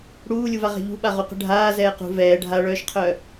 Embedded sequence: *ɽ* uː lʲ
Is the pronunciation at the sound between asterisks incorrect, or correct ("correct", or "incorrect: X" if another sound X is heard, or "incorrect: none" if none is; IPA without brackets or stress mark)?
correct